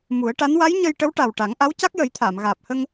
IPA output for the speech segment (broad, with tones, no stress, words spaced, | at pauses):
mu˨˩˦ə̯ʈa˧˥n wa˧˥jɲə˧j ʈə˧˥wʈa˨˩w ʈa˨˩˦ŋʔa˧˥w ca˦˥k̚jə˨˩˦jt̪ʰaː˨˩˨m ɣaː˨˩p̚hə˧ŋ